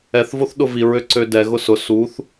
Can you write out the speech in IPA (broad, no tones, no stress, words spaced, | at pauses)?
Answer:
ɛθvoθ ɗʊviɹø ǀødɛ ɣʊsʊ suθ